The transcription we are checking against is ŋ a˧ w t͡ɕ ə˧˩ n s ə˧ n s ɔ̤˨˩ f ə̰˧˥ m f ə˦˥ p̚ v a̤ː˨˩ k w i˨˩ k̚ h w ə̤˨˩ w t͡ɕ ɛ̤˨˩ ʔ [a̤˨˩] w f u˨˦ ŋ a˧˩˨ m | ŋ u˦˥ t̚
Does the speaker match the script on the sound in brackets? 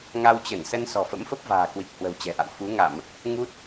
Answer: no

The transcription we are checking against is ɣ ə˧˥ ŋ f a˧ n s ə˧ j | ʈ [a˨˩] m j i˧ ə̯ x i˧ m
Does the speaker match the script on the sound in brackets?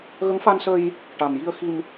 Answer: yes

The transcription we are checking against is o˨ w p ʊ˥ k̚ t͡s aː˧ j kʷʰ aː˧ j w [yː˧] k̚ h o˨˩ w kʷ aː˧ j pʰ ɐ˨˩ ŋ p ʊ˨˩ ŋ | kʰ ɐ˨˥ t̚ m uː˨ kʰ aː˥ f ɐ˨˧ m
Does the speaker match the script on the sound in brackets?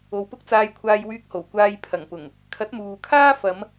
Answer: yes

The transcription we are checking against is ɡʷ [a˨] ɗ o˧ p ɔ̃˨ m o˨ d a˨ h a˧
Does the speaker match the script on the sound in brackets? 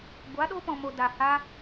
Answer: no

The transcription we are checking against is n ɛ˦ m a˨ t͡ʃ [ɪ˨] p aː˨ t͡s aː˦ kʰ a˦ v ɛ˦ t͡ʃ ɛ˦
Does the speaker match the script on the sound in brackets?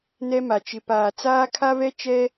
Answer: yes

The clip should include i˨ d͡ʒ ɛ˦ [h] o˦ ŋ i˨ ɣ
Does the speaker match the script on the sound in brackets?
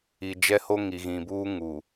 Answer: yes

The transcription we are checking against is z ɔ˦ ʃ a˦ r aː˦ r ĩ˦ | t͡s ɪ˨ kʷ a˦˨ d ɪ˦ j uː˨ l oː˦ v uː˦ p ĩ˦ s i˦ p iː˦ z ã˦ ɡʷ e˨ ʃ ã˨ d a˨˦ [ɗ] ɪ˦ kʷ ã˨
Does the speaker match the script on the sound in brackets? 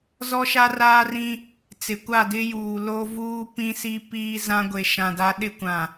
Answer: yes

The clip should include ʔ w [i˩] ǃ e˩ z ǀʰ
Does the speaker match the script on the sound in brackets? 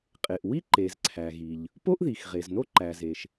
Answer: no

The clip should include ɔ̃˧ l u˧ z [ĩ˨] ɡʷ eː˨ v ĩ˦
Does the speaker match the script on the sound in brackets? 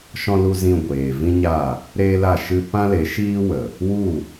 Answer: no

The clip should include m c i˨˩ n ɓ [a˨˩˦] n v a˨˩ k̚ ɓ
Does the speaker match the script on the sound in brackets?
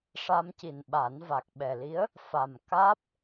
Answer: yes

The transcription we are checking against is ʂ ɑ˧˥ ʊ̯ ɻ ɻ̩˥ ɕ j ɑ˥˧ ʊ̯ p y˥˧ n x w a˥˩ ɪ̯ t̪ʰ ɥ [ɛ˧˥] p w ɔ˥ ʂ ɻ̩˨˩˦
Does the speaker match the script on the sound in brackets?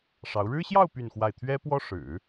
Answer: no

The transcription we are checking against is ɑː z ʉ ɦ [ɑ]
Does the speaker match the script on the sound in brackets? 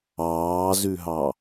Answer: yes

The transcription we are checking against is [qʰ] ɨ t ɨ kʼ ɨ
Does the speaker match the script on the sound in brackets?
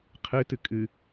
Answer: yes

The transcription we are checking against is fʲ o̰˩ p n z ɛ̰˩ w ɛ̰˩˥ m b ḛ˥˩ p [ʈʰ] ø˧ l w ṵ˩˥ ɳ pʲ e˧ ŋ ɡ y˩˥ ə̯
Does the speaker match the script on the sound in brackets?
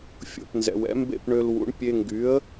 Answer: no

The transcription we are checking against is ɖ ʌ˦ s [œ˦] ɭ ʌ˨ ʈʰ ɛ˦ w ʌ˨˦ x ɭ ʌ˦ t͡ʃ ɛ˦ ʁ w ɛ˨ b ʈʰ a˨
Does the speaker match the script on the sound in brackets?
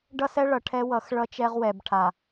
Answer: no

